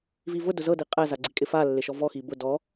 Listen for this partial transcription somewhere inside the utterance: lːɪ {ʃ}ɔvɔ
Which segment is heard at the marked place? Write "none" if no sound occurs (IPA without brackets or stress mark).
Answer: ʃ